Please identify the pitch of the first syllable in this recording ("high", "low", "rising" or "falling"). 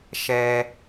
high